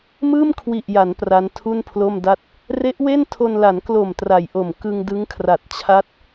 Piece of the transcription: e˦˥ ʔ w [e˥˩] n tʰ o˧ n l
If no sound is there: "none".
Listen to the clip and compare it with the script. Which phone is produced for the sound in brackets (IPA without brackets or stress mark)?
e˥˩